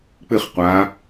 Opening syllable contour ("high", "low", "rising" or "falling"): falling